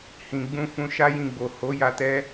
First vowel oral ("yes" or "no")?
no